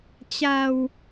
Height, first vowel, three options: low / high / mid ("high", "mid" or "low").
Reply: low